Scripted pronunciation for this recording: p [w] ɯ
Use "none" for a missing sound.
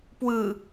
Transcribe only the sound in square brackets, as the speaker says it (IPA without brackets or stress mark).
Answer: w